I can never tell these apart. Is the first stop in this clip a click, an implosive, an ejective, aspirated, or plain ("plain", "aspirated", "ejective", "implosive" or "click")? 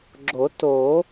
click